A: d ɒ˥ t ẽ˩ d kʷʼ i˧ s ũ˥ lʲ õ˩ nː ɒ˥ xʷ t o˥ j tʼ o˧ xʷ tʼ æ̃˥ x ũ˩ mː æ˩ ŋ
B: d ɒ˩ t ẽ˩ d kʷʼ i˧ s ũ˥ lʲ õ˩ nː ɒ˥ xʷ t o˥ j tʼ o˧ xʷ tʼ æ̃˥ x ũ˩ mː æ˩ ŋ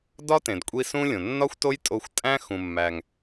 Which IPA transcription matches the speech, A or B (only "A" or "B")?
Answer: A